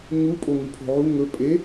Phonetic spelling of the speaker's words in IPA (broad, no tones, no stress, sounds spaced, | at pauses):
ɲ u pʼ o ŋ ʉ pʰ o̤ ʕ u ŋ ɵ pʼ e